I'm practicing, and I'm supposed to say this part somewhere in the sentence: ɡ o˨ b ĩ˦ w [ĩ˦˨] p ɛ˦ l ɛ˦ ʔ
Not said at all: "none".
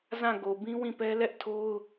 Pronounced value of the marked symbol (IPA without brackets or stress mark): ĩ˦˨